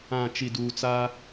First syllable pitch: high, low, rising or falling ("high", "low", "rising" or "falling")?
low